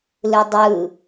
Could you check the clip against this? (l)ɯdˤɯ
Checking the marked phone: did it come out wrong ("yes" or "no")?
no